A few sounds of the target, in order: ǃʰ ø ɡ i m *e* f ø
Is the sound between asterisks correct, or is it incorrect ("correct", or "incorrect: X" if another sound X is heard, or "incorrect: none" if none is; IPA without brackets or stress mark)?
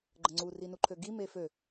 correct